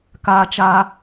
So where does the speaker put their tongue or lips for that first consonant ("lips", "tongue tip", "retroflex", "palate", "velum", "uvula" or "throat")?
velum